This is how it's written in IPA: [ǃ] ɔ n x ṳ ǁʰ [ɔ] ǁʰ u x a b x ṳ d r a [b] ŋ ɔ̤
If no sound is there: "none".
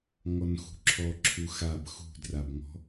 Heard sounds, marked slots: ŋ, ɔ, b

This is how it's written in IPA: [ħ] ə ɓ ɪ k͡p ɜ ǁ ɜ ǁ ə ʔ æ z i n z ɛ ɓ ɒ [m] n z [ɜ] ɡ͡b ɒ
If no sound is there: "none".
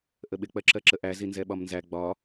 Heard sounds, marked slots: ʔ, m, æ

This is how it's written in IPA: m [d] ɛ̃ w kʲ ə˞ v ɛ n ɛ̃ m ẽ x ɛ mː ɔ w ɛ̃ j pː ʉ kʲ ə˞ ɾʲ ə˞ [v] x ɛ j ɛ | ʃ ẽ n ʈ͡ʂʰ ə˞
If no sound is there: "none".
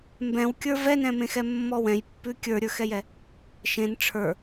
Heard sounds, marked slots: b, none

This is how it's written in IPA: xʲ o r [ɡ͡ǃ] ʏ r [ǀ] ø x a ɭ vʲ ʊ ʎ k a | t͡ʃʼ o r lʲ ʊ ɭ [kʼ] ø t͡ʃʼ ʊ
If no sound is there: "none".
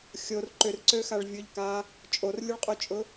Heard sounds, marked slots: ǃ, ǀ, qʼ

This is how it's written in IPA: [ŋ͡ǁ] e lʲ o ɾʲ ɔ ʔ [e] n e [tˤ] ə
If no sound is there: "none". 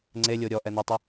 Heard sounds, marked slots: ŋ͡ǀ, ɛ, tˤ

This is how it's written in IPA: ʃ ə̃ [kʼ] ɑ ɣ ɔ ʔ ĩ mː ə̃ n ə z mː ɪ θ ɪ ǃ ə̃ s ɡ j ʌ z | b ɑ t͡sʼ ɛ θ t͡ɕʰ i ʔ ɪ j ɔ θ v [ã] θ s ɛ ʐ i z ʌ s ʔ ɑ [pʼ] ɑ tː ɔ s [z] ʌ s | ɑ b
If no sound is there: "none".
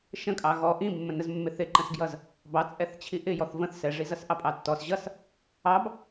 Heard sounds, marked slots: kʼ, ə̃, pʼ, ʑ

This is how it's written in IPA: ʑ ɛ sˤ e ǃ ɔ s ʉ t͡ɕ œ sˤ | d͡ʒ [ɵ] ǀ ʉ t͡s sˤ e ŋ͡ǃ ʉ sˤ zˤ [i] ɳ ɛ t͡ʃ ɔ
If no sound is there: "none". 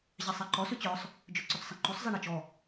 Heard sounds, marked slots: ɵ, e

